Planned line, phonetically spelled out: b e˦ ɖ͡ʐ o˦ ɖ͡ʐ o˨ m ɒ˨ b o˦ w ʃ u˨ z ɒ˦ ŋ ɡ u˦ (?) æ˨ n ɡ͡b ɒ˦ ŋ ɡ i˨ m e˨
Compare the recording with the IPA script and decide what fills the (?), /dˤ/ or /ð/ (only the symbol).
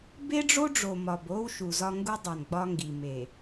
dˤ